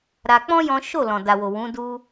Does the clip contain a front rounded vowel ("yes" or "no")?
no